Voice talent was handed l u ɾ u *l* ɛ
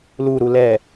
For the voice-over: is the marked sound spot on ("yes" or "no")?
yes